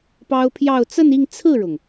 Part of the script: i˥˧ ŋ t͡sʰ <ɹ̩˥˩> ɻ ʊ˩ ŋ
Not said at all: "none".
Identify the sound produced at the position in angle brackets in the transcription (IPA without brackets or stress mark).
ɹ̩˥˩